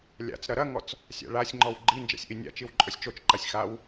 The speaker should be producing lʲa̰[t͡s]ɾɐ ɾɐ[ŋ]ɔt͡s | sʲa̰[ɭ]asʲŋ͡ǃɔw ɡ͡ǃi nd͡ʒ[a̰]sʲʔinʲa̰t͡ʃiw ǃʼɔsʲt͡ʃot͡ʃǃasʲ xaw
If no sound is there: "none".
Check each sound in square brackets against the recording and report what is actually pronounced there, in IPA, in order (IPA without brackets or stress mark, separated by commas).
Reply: t͡s, ŋ, ɭ, a̰